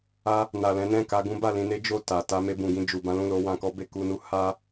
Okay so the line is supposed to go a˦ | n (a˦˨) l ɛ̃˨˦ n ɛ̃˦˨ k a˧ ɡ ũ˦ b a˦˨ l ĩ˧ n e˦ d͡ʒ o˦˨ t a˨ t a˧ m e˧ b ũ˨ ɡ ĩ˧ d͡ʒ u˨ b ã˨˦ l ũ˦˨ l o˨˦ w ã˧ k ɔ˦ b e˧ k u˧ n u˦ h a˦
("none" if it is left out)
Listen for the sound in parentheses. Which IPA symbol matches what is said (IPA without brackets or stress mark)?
a˨